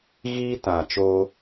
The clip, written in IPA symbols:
ɣiː˦tã˨t͡ʃo˦

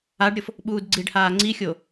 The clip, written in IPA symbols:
aɖɾʲɤf | ɓuːdɡ͡ǀiɖhaː ŋ͡ǀixʲo

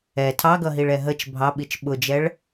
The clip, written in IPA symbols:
ɛ tʰɑɡʌɦiɭɛ ɦət͡ʃ bʱɑɓit͡ʃ ɓʊd͡ʒɛɭ

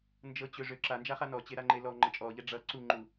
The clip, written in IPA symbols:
nd͡ʒɤt͡ɕøʐø ǁand͡ʒaχa nɔt͡ɕeɾaŋ͡ǃe lɔŋ͡ǃɤ t͡ʃʼɔʎɛ ɖ͡ʐʌ ǀuŋ͡ǃu

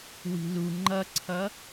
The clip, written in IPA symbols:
wi̤lu ŋ͡ǃʌǀʰʌ

